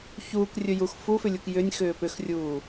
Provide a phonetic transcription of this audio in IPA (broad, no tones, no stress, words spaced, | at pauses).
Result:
çuːkrʲɵjux fufʏlʲuk jʏnʲxʏː pʏxrʲuː